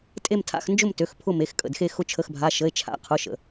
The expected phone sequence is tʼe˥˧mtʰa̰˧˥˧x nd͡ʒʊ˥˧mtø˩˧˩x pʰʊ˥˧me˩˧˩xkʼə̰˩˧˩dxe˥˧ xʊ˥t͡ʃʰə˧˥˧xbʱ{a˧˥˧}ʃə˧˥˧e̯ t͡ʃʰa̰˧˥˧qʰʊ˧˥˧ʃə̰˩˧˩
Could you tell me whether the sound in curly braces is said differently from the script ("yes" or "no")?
no